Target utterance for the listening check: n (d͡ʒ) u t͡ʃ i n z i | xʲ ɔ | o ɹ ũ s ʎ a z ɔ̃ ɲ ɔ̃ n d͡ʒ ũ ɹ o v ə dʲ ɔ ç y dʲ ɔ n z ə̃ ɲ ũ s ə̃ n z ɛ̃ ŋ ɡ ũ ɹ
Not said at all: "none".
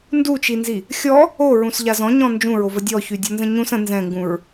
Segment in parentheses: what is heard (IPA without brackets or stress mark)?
d